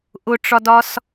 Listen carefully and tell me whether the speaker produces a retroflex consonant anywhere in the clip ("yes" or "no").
yes